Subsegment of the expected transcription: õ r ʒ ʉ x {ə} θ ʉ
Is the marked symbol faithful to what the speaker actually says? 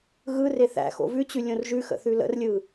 no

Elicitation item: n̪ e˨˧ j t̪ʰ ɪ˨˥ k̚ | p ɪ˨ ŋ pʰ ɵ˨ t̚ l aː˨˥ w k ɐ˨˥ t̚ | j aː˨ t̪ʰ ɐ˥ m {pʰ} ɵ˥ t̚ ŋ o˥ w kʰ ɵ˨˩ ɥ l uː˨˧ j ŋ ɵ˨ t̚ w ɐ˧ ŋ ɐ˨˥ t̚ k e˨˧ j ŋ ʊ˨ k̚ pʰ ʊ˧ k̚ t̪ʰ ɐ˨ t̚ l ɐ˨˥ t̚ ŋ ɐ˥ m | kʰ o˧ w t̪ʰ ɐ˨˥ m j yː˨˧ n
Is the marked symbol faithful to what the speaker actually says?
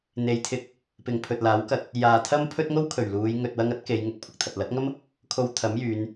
yes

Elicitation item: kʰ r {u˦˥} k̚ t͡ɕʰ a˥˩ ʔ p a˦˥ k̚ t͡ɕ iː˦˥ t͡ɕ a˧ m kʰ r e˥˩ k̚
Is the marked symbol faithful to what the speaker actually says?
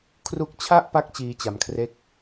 yes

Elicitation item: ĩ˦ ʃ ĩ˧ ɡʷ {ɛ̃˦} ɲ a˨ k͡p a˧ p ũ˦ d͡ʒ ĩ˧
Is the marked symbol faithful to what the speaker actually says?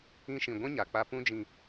yes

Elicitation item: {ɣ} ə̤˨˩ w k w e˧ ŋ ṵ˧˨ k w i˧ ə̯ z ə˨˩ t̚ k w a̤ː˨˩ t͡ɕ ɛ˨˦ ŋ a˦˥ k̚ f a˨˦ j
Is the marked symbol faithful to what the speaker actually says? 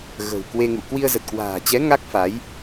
yes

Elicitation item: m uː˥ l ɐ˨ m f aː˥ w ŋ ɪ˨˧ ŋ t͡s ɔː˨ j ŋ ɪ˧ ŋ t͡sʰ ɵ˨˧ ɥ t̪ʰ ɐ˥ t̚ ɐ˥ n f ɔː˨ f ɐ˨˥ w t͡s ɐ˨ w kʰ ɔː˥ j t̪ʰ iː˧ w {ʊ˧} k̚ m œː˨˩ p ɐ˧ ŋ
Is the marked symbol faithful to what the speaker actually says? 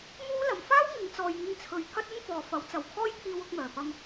yes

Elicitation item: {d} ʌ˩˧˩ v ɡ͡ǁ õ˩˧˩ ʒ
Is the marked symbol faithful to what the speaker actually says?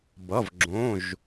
no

